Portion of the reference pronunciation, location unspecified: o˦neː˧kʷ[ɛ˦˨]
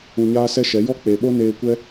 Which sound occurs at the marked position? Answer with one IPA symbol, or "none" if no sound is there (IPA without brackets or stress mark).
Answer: ɛ˦